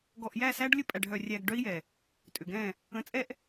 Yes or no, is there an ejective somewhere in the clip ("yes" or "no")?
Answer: yes